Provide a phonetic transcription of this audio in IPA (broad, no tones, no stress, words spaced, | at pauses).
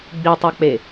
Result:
ɡ͡bitˤak͡pe